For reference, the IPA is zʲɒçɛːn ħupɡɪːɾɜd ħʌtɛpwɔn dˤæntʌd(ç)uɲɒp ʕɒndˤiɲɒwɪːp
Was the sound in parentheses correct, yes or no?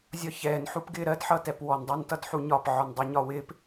no